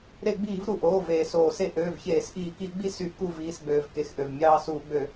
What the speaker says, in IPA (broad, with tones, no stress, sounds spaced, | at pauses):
ɾ e˧˩˧ ɡ͡b iː˧˩˧ v ɾ u˩ ʔ oː˩˧˩ v eː˩ s oː˩ s e˦ ʔ øː˩˧˩ v ç eː˧˩˧ s ʔ iː˧˩˧ k i˧˩˧ ɡ͡b i˥˨ s y˧˩˧ k u˥˨ v iː˩˧˩ s ɡ͡b øː˩ v k e˩˧˩ x ʔ ø˩ v mʲ ɑː˦ s uː˧˩˧ ɡ͡b ø˧˩˧